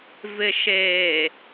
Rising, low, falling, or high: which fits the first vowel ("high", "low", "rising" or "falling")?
low